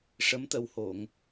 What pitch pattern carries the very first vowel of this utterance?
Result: rising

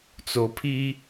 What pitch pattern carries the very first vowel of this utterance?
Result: low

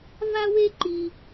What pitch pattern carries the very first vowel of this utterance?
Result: high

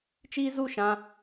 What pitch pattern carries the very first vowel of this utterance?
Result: high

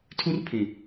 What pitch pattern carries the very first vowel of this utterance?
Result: high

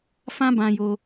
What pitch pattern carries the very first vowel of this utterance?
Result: high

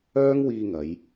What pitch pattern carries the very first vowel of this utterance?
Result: high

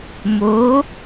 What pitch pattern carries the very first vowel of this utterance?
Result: rising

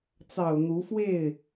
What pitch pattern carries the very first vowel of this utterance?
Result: low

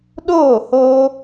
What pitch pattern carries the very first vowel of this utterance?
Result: falling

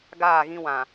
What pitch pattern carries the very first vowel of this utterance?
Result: falling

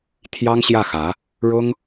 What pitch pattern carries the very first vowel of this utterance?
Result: high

